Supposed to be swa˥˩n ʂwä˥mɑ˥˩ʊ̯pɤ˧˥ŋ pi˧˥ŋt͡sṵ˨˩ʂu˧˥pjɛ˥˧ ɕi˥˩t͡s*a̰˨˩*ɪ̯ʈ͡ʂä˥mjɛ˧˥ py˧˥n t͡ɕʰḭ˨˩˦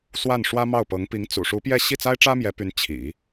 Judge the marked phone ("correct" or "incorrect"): incorrect